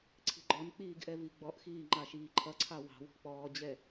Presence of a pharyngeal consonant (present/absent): absent